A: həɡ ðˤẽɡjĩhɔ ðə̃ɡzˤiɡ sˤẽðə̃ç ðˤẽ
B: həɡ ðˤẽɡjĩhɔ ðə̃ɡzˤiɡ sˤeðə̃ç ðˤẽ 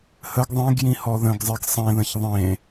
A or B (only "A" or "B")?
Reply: A